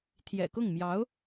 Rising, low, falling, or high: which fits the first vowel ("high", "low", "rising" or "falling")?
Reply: low